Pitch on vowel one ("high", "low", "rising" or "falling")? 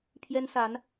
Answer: high